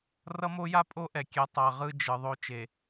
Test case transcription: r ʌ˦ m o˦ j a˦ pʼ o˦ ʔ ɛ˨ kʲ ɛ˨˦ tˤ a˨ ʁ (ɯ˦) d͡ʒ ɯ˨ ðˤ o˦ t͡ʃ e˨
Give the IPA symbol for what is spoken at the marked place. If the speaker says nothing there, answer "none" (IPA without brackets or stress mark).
ɯ˦